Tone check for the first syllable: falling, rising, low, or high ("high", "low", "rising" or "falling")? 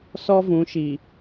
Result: high